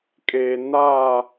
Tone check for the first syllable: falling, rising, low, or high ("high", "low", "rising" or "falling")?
low